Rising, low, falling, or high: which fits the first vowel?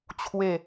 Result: falling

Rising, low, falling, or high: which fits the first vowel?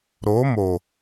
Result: rising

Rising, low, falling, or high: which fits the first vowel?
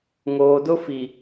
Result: low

